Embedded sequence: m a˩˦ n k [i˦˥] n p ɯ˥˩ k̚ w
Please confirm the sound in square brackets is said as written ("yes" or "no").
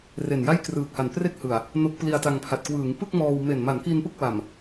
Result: no